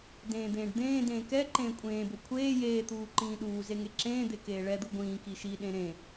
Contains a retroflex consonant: yes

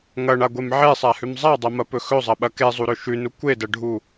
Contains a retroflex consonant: yes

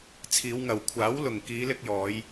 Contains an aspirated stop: yes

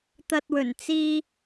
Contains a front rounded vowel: no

